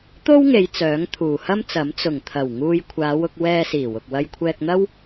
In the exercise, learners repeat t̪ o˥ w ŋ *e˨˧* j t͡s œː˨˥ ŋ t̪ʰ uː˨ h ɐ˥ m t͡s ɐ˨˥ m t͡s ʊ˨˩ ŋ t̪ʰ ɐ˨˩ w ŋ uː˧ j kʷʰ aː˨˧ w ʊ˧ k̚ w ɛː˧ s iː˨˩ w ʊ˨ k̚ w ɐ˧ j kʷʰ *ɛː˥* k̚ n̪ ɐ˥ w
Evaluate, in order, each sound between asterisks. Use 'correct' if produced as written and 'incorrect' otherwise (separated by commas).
correct, incorrect